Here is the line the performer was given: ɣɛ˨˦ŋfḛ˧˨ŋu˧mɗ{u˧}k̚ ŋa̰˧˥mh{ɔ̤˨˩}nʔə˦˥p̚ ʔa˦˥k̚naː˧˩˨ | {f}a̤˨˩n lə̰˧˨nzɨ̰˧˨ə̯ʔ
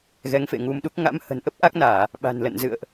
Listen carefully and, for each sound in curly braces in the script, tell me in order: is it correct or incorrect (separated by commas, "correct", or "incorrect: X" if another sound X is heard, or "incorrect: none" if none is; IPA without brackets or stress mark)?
incorrect: u˦˥, incorrect: ə̤˨˩, incorrect: ɓ